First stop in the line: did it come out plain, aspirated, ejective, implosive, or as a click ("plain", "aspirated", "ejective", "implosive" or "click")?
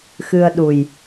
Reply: implosive